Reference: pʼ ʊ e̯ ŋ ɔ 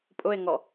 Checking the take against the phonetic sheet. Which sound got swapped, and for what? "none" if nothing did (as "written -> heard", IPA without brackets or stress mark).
none